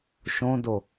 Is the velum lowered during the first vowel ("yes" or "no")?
yes